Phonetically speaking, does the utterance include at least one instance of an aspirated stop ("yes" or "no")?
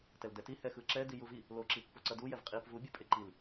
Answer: no